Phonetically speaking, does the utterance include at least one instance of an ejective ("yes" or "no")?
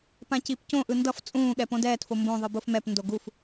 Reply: yes